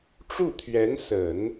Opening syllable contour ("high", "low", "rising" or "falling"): falling